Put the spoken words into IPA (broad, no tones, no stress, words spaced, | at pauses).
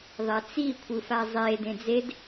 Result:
ðˤɛt͡si kʷʰɯfazˤe dẽd͡zed